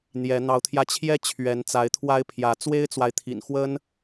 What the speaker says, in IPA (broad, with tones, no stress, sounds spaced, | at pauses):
n̪ j ɛ˨˦ n̪ ɑ˨˦ ʊ̯ t̪ʰ j ä˧ t͡ɕʰ j ɛ˦ t͡ɕʰ ɥ ɛ˨˦ n t͡s a˨˦ ɪ̯ t̪ʰ w a˦ ɪ̯ pʰ j ä˨˦ t͡s w e˦ ɪ̯ t͡s w a˨ ɪ̯ t̪ʰ ḭ˨˩ n x w ə˦ n